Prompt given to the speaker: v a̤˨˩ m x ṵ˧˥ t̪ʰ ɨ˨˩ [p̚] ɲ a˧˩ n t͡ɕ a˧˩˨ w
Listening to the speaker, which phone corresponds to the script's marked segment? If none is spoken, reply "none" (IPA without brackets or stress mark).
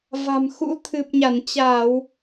p̚